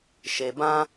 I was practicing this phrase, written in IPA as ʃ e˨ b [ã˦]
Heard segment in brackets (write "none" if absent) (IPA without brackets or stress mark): ã˦